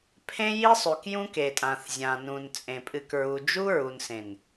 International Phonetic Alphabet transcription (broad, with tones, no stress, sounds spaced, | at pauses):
pʰ ẽ˦ j i˦ sˤ ʉ˨ k j ũ˦ k e˨ tʼ ã˨ θ zʲ ã˨ n ũ˨ n t͡sʼ ẽ˨ pʼ ɨ˨ k ɹ u˨ d͡ʒ u˦ ɹ u˨ n s ẽ˨ n